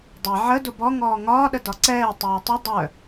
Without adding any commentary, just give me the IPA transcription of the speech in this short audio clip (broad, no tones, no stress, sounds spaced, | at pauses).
dˤ ɛ ʕ ə d ʊ b ɔ ŋ ɔː ŋ ɒː ɗ ə d ɒ ǀ ɛː tˤ ɛː tˤ ʊ dˤ œ